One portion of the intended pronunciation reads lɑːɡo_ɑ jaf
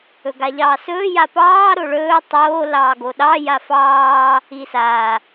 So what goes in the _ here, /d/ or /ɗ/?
ɗ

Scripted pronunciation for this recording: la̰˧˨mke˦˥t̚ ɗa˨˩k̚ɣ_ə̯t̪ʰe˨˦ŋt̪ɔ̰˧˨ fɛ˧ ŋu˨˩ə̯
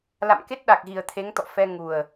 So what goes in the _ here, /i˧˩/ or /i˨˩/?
i˨˩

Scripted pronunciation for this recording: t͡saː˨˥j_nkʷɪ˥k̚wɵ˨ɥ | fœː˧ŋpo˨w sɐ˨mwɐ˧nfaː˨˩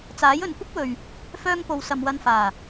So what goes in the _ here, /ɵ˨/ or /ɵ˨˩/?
ɵ˨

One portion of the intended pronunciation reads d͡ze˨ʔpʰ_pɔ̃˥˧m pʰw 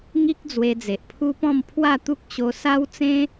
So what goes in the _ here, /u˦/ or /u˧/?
u˦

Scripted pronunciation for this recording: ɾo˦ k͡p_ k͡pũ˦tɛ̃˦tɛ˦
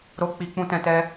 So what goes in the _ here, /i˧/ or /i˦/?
i˦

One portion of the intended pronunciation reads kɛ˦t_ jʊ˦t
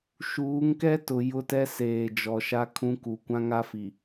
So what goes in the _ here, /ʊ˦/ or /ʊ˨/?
ʊ˨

